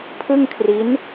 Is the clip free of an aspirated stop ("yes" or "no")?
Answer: no